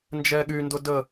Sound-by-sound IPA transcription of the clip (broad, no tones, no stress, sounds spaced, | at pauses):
n d͡ʒ ɛ ɠ y n d ʊ d ə